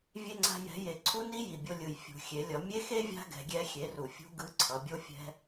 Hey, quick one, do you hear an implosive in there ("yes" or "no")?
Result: no